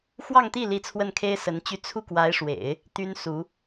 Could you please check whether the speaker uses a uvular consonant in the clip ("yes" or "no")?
no